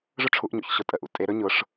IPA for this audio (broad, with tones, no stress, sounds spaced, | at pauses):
ʐ ɵ˦ ʈ͡ʂʰ u˩˧ ʔ ɲ ṵ˩ ç ɕ ʊ˩ tʼ ə˩ ʔ ṵ˩˧ tʼ e˩˧ ɾ ɵ˦ ɲ ʊ˩˧ ʂ